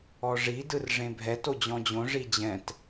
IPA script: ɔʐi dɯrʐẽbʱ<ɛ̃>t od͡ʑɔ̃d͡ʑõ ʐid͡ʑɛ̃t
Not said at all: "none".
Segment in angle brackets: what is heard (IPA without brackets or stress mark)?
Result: ɛ